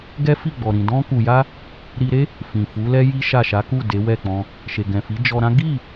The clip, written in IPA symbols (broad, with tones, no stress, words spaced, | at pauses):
ɡɛ˦fi˦˨ɡ͡bɔ˨ ɾĩ˨dɔ̃˧ku˨ja˧ | ɾi˧ɾe˦ | fĩ˨fu˨˦lɛ˦ ji˦ʃa˦˨ ʃa˨˦ku˦˨ de˨˦wɛ˦˨k͡pɔ̃˧ | ʃe˨ɡɛ̃˨fi˨˦ d͡ʒɔ˧ɾã˦ ɡi˦˨